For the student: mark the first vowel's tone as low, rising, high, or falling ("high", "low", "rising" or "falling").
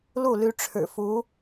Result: falling